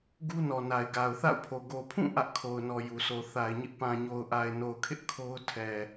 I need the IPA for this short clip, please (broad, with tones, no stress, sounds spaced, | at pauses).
ɡ u˦ n ɔ˨ n a˨ ɪ̯ ɡ a˨ ʊ̯ θ a̰˦˨ ʊ̯ pʰ o˨ ɡ o˨ pʰ ũ˦˨ ʔ ä˦ ʔ kʰ o˨ ʊ̯ n ɔ˨ j u˨ sʰ o˨ θ a˨ ɪ̯ ɲ ɪ˦ ʔ p ã˨ ɲ o˨ ʊ̯ ʔ a˨ ɪ̯ n o˨ ʊ̯ kʰ ɪ˦ ʔ kʰ o˦ ʊ̯ tʰ ɛ˨